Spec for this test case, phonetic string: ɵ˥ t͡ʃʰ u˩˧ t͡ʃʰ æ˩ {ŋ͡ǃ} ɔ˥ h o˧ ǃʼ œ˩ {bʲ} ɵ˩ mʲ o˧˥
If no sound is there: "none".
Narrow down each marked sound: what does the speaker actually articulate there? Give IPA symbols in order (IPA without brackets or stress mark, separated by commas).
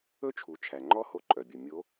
ŋ͡ǃ, bʲ